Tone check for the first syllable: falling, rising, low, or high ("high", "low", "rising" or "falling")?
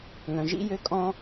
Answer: low